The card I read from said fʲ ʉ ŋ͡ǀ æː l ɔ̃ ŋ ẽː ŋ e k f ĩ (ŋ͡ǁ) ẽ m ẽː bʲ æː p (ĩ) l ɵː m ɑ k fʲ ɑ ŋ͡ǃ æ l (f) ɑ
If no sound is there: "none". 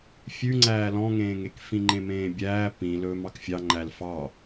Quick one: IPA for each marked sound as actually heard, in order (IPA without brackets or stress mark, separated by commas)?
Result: ŋ͡ǃ, ĩ, f